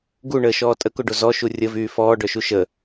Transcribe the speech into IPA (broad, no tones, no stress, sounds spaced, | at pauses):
ɡ u ɳ əː ʃ ɔː tʼ ə k o ɖ o z ɔ ʃ u rʲ ə v yː f ɔː ɖ œ ʃ u ʃ ə